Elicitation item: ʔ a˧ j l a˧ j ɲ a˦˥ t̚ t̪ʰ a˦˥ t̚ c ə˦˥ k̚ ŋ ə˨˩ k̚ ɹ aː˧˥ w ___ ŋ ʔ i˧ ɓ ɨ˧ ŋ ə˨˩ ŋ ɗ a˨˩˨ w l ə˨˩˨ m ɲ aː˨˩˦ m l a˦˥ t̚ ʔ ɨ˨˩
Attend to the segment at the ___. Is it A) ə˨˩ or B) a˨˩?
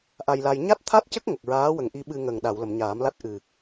A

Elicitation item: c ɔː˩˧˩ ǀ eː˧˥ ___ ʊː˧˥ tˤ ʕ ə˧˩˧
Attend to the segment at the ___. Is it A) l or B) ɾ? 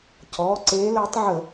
A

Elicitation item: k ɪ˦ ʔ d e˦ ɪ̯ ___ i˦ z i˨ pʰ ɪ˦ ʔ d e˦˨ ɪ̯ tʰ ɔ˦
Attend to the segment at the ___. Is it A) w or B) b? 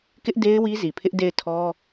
A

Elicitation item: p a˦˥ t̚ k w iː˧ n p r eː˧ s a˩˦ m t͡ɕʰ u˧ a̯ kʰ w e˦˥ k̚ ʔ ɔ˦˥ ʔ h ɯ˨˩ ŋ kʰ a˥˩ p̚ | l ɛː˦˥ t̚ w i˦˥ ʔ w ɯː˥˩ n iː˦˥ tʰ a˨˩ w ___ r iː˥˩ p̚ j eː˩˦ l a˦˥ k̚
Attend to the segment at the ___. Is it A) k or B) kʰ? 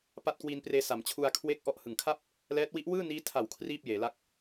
B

